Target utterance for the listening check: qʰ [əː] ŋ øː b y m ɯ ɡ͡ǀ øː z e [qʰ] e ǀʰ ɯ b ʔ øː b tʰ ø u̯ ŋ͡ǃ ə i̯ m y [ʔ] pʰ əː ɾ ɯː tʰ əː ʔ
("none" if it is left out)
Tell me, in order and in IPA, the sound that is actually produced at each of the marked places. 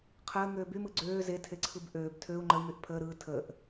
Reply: əː, tʰ, ʔ

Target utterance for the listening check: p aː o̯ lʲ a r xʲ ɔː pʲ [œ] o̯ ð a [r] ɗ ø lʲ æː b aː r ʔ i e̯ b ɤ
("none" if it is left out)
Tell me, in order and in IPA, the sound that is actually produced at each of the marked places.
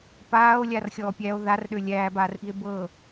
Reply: æ, r

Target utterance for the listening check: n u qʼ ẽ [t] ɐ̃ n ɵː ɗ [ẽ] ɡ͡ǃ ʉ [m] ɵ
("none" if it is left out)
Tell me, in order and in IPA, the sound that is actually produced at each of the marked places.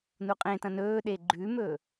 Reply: t, e, m

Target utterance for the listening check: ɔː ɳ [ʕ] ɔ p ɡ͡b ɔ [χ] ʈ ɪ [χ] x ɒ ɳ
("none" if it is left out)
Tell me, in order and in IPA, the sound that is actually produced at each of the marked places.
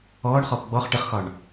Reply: χ, χ, χ

